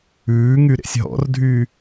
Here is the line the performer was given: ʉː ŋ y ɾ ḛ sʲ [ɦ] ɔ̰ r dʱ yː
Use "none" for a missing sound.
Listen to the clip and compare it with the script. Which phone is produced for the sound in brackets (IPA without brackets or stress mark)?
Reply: ɦ